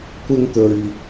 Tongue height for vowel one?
high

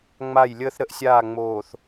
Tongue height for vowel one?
low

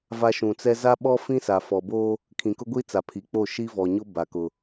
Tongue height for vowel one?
low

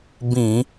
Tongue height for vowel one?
high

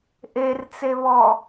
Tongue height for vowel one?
mid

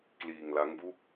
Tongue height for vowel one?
high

